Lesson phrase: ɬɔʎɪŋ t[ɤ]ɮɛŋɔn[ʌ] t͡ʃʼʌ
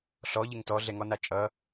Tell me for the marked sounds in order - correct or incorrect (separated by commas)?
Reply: incorrect, incorrect